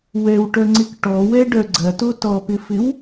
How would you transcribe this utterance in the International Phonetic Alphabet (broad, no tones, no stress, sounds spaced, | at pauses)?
w ɛ w ʈ œ ŋ͡ǀ ɪ k ʈ ɔ w ɛ ɖ œ ɡ͡ǀ ɐ t o t ɔ p ɪ f ɪ w